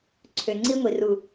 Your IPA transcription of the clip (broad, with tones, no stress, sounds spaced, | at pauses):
ǀʰ ø˨ ŋ͡ǀ i˧ ŋʷ i˨ r u˨